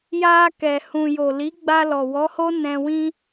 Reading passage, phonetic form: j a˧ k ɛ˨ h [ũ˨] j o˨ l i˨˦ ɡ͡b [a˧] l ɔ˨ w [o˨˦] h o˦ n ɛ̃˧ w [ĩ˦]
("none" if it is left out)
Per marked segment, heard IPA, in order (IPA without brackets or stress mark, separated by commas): ũ˨, a˧, ɔ˨˦, ĩ˦